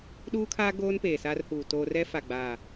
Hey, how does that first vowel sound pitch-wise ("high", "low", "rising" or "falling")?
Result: high